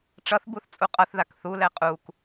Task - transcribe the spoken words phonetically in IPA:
ʈ͡ʂ ʌ θ b u θ t͡sʼ u qʼ ʌ θ ð a k θ u l ɛ qʼ u k

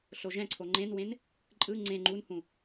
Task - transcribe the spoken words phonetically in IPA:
ɬ o ʒ ɛ̃ ǀʰ o ŋ͡ǃ ẽ n w ẽ n | ǃʼ ɯ ŋ͡ǀ ẽ ŋ͡ǃ u n h ũ

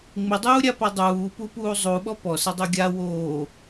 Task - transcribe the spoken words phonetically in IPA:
ŋ͡m ɪ dˤ uː ɾʲ a p a dˤ uː p u p uː zˤ u ɓ ɔ p ɔ s ɪ dˤ o ɡʲ a w oː

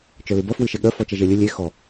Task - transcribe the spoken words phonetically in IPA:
t͡ʃ œ l ɨ b ɐ f w ɨ ʃ e ɠ œ f ɔ t͡ʃ ɐ ʒ e lʲ ɨ lʲ e x ɔ

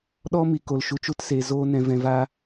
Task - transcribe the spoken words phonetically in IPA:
ɗ ɔ˦ m i˨ k o˨ l ʃ u˨ t͡ʃ u˦˨ t s eː˨ z oː˧ n ɛ̃˨ v ɛ̃˨ v a˧

